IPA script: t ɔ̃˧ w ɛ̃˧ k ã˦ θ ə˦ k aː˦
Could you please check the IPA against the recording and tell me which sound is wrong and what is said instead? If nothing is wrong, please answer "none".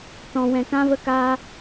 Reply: θ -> v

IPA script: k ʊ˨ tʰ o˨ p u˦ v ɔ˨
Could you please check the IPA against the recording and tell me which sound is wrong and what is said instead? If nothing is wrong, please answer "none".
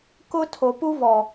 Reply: ʊ˨ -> ʊ˦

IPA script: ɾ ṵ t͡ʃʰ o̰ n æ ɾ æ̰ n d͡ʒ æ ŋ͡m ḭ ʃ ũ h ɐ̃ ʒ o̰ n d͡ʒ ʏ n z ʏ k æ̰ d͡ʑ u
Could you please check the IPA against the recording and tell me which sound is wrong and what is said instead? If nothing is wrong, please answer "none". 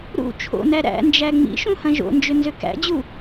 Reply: none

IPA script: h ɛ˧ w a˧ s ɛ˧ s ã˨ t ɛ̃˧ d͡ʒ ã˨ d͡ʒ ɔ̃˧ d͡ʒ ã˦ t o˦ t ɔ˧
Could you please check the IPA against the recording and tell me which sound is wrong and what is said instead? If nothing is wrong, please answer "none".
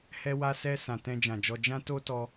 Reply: ɔ̃˧ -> ɔ˧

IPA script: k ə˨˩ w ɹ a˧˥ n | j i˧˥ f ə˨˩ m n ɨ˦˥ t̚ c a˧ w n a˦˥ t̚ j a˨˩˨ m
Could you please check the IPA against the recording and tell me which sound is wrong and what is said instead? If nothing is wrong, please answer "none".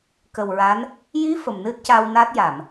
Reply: none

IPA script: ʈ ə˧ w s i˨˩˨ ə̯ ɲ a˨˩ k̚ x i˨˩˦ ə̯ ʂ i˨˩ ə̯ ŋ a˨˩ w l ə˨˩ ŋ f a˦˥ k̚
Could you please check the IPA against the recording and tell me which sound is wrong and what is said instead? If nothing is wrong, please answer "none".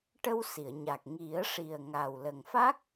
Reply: x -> ŋ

